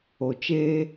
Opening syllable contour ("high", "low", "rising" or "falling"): low